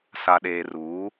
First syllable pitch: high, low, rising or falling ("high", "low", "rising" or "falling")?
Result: low